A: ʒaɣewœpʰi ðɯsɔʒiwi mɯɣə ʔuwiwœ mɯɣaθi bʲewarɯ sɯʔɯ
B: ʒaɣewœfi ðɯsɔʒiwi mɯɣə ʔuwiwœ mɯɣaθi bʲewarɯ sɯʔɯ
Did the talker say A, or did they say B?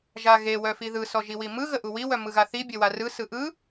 B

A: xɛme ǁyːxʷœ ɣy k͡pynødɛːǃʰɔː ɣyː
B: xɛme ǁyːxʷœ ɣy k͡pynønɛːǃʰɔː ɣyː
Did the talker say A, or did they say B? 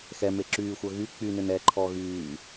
B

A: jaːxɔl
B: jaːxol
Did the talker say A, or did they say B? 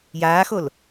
B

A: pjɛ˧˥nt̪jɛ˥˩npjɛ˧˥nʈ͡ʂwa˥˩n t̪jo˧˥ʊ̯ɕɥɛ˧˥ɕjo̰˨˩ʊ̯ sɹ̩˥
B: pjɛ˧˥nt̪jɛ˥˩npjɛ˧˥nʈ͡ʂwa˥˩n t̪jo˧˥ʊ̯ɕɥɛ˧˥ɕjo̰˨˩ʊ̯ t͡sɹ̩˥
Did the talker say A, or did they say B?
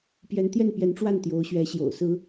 A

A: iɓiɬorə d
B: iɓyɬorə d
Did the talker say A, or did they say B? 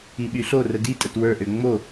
B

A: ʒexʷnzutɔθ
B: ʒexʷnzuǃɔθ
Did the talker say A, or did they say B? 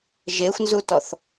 A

